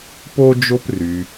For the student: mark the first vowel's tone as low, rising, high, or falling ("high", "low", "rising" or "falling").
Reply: high